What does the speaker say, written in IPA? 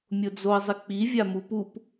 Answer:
mʲʊd͡zoə̯zˤɪk͡pi vʲamupup

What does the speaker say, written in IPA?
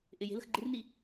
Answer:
ʔɪ je̤lə̤x ɡ͡ǃɪrni

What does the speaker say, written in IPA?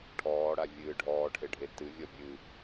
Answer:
ʈʰɔːɽavʲɨː ɖʱɔːʈʰeɖʱe tɨvʲɔ bʲɨ

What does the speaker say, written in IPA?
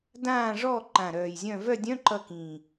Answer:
dãː˦˨ʐɔː˦˨ ǃã˨˩ɾœː˨˩jzʲœ̃˦˨ vœ˦˨dʲœ̃˧˥˧ ǃʌ˦˨kĩ˨˩

